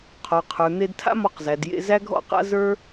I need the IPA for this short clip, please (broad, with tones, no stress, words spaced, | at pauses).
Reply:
qʰɔ˩qʰə˞˩n̪e˧dtʰa̰˥ mɔ˧qzæ˩djḛ˧ zæ˥ɡʱɔ̰˥qa̰˥ zə˞˥